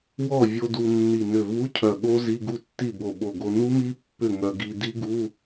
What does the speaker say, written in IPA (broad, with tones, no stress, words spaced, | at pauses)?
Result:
wɔ˥˩vʲo˧ du˧nːi˧˩ nʏ˧˩ vu˧˥˧ cʰœ˧˩ɠo˦˥ zi˧˥˧ɡu˥˩tːi˥˩bo˧˩ ɓo˧˩ɡo˧ nu˦˥mi˦˥ pːʏ˥˩ŋœ˧ ɡi˧di˦˥ ɡu˧˥˧